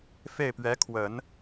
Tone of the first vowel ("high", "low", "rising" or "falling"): falling